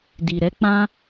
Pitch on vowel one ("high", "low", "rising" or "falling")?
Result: low